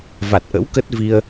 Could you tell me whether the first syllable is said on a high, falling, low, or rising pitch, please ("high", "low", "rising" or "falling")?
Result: low